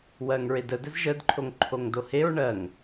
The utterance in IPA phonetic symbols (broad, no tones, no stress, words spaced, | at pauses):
wɜŋɹedə dɛzʒədǃʰoŋ ǃʰoŋdoheɹ ɳɜŋ